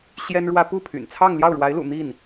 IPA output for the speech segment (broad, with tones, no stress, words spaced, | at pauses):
ɕjɛ˥nɻwä˥ pu˥˩pʰy̰˨˩nt͡sʰɑ˥˧ŋ ljɑ˥˩ʊ̯ɻwa˧˥ɪ̯lṵ˨˩ n̪i˥˩n